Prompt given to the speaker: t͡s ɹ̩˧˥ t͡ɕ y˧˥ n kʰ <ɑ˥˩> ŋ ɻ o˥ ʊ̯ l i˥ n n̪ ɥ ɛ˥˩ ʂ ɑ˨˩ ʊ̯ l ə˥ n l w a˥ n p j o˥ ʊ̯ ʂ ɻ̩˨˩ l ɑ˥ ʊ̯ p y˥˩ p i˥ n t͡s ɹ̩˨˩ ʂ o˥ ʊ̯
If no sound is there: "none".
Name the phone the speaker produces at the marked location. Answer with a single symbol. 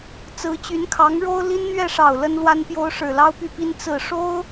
ɑ˧˥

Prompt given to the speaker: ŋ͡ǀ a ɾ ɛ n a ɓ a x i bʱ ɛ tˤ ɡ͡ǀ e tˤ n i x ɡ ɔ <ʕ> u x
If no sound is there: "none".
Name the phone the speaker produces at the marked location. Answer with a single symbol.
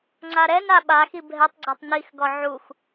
ʕ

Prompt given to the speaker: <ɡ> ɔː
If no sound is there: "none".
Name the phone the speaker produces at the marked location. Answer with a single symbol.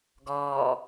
ɡ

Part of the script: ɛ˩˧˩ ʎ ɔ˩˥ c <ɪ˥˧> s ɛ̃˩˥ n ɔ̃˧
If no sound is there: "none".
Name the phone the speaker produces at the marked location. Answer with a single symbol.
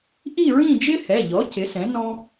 ɪ˩˥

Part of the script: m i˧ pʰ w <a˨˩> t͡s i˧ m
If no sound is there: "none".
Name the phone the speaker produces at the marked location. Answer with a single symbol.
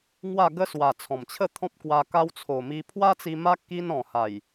a˦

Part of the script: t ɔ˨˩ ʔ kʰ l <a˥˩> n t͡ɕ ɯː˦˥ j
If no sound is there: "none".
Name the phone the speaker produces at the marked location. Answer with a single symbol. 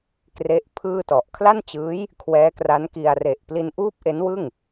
a˥˩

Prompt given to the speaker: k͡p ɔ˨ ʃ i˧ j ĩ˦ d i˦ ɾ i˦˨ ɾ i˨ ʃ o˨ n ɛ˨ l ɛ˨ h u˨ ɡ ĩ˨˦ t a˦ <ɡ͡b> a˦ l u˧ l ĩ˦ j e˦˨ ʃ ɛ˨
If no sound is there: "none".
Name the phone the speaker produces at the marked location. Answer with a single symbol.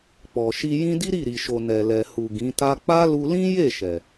k͡p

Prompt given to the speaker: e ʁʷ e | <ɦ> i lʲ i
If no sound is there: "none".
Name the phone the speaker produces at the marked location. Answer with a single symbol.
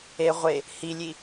h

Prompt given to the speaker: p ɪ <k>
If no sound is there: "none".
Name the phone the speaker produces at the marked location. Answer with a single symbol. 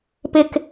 k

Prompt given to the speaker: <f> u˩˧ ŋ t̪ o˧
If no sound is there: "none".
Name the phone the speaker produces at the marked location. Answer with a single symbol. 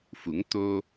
f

